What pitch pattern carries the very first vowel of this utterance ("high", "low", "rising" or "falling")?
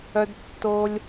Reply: high